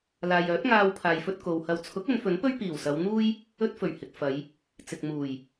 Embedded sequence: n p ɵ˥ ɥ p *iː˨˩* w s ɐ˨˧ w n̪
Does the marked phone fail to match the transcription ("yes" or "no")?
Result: no